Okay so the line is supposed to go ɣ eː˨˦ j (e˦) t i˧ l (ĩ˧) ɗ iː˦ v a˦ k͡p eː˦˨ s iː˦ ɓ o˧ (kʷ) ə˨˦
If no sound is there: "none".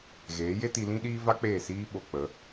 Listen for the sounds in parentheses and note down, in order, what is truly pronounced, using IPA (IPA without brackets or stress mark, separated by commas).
e˦, ĩ˦, k͡p